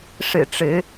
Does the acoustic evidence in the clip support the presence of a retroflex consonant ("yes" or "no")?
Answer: yes